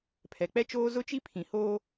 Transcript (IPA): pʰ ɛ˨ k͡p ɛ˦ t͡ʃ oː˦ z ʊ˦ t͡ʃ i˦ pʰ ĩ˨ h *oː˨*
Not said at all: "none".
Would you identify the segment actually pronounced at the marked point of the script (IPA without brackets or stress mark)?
oː˦